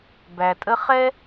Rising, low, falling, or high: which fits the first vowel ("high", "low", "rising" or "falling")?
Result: low